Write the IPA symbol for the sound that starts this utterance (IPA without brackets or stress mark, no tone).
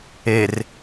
e